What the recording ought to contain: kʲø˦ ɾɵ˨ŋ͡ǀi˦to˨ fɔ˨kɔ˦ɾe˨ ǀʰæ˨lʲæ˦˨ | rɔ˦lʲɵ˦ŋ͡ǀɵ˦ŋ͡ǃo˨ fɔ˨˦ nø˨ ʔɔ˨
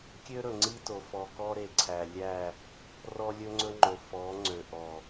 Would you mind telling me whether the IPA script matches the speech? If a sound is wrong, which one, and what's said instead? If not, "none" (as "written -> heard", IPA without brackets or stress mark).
n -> ŋ͡ǀ